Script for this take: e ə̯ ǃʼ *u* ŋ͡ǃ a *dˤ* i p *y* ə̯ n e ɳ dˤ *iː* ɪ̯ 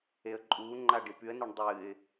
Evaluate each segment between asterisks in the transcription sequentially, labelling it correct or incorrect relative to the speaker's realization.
incorrect: uː, incorrect: ɖ, correct, incorrect: ɨː

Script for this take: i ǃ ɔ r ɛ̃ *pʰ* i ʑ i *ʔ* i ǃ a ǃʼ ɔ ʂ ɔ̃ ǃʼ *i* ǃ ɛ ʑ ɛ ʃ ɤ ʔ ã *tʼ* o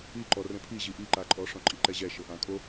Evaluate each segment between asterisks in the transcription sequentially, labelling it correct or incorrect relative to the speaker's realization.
correct, correct, correct, incorrect: kʼ

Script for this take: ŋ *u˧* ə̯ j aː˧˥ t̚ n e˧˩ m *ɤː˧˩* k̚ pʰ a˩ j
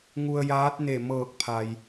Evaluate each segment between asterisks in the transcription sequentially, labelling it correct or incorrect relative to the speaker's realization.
correct, correct

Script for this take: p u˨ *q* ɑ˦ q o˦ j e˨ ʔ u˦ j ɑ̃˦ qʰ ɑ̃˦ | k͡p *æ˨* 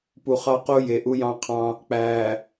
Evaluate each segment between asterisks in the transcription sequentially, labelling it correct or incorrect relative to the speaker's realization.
incorrect: χ, correct

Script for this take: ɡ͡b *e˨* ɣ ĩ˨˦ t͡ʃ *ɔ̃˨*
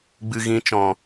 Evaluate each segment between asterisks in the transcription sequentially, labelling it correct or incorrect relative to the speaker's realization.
incorrect: ɨ˨, correct

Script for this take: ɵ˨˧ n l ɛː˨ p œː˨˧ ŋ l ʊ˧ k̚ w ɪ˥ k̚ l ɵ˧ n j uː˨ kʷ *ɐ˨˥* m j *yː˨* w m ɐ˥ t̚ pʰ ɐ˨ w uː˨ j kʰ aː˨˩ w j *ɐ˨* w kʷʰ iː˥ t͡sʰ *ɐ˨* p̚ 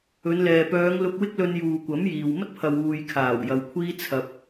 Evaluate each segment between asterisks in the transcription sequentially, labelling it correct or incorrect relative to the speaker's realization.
correct, incorrect: iː˨, correct, incorrect: ɐ˧

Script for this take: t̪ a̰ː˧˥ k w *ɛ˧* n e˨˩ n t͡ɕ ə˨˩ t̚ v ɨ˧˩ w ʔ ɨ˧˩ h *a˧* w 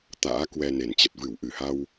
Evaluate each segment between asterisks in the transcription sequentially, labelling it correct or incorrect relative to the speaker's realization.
correct, correct

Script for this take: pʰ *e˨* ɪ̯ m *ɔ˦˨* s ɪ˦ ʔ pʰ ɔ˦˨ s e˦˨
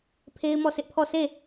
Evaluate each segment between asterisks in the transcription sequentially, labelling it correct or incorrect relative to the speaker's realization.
incorrect: e˦, correct

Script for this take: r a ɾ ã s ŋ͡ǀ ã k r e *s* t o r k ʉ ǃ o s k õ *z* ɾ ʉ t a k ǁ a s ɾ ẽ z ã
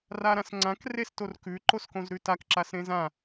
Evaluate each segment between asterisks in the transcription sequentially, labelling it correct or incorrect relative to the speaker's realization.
correct, correct

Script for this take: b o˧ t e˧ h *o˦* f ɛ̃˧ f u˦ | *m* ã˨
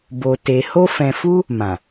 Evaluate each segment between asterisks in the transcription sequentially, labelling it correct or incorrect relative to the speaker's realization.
correct, correct

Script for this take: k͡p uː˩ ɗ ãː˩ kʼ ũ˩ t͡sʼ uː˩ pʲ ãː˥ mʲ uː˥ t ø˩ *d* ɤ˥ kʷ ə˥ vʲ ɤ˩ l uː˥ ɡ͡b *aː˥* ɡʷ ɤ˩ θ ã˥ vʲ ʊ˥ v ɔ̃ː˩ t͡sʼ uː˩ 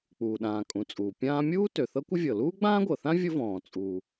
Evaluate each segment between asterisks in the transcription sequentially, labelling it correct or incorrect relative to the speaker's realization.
incorrect: θ, incorrect: ãː˥

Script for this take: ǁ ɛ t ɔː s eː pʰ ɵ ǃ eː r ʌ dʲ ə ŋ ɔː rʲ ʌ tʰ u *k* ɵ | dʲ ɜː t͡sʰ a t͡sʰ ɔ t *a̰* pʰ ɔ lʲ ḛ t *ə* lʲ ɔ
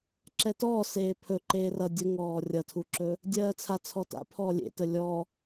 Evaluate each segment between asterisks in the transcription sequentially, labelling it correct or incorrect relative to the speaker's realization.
incorrect: ǁ, correct, correct

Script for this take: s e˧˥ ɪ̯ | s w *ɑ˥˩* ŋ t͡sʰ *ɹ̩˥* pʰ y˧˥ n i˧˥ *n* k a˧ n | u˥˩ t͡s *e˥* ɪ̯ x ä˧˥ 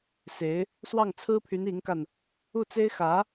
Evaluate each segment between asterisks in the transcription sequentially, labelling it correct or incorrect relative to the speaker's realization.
correct, correct, incorrect: ŋ, correct

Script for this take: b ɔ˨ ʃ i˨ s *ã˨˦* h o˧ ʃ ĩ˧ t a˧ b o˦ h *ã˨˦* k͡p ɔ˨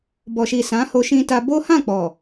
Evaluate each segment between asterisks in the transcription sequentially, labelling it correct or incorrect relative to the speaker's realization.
correct, incorrect: ã˦˨

